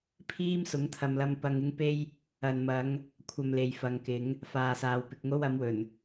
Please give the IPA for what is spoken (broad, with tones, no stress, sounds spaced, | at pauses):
pʰ iː˥ m s ʊ˨˥ ŋ t̪ʰ ɐ˨ m l ɐ˧ m p ɐ˧ ŋ ɪ˥ ŋ p e˥ j | ɐ˨ n m ɐ˨˧ ŋ | kʷʰ ɐ˧ m l e˨ j f ɐ˨˧ ŋ k ɪ˨˥ ŋ | f aː˨ s aː˨ w p ɪ˨ k̚ ŋ o˥ w ɐ˨˥ m w ɵ˨˩ n